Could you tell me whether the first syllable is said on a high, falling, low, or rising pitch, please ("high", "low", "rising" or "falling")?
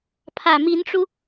low